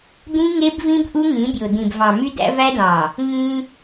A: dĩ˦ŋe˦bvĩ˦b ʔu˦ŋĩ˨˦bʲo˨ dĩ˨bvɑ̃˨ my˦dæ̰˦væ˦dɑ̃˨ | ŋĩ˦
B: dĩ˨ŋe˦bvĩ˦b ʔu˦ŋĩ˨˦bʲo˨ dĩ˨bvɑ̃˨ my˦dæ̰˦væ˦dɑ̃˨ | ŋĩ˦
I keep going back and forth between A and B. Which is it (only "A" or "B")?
A